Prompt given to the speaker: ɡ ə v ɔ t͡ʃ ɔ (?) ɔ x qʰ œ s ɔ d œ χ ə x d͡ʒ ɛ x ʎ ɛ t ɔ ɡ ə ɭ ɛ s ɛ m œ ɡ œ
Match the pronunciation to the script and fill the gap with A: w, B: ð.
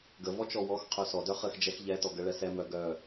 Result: A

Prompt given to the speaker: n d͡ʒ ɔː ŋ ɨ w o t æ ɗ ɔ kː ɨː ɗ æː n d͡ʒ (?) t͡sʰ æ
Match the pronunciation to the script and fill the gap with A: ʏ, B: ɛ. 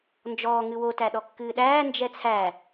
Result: B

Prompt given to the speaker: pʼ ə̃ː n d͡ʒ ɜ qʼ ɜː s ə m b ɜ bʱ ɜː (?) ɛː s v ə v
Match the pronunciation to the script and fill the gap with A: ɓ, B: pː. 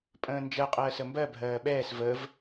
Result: A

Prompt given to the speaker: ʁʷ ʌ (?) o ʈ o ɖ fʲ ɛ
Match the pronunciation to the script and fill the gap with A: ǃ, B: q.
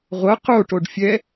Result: B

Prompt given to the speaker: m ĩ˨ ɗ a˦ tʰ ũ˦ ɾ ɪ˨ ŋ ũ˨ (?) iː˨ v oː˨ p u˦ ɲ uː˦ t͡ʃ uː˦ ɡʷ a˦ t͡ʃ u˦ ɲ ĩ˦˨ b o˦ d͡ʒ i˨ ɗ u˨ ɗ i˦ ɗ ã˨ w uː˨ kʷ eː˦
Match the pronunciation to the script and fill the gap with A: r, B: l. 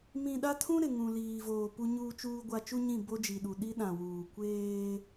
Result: B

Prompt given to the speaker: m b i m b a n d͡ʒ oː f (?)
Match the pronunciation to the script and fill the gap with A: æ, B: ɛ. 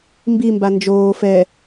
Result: B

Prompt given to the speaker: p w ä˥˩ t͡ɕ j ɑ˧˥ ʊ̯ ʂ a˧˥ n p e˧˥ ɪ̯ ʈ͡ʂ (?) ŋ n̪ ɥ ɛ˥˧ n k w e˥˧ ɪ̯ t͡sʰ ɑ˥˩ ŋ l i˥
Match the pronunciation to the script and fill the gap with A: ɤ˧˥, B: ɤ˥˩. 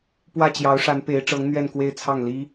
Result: A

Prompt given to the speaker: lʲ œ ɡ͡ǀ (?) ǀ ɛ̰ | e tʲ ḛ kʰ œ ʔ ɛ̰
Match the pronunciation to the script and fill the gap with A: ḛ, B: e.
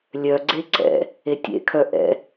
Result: B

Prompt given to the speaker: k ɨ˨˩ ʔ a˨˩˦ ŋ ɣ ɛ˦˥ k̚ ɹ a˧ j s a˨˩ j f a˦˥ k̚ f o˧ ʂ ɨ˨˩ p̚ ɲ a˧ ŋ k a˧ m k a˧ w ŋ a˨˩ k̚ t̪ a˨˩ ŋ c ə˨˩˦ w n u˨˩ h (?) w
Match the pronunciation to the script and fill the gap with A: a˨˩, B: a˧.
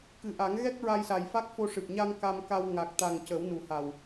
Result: A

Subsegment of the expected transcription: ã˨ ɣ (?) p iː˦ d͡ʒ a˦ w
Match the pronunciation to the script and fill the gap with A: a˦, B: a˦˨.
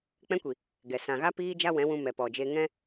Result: A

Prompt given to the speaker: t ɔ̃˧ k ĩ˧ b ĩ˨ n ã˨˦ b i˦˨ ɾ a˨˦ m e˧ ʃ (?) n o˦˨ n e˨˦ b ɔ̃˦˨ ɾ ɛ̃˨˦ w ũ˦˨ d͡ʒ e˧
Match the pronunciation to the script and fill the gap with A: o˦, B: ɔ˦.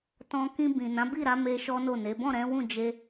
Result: B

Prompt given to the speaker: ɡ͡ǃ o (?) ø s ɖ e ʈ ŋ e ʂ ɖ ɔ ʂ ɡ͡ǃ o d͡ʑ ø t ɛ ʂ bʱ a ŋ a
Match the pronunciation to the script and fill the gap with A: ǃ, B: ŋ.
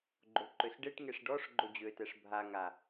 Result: A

